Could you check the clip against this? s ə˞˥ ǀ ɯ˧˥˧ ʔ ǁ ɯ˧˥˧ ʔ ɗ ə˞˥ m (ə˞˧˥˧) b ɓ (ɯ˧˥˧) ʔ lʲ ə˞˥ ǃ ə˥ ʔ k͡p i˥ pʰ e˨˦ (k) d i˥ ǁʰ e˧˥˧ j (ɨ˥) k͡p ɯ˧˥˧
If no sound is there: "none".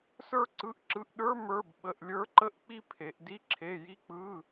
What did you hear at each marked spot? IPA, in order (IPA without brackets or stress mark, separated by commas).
ə˞˧˥˧, ə˧˥˧, ʔ, i˥